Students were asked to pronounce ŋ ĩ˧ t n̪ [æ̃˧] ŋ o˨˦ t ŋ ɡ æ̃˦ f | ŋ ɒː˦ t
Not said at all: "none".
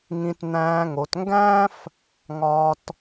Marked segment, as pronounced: æ̃ː˧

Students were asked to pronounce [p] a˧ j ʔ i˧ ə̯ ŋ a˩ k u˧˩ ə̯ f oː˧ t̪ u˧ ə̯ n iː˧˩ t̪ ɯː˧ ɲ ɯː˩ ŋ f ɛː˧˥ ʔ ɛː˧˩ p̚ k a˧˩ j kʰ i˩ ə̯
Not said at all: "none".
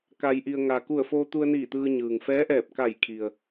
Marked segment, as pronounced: k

